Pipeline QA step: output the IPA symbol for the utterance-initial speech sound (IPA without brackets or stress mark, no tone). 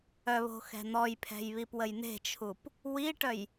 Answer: œ